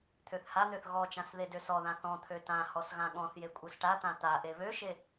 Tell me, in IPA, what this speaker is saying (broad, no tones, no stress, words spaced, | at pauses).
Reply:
t̪ʰøθhan̪øθ ɣɔt͡ʃãs ðedøsɔðã θɔ̃t̪ʰø tãhɔs ɣãɠɔ̃θje kʷʼesʈat̪ã t̪a ʔeβøʃe